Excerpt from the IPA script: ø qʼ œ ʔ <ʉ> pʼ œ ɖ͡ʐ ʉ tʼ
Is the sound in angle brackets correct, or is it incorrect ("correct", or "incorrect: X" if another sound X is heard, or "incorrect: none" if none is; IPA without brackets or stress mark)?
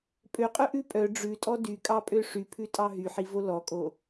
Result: correct